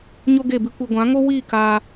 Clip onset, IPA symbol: ɲ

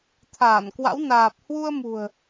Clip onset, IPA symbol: t̪ʰ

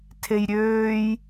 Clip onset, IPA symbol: tʰ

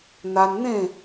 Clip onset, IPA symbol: n̪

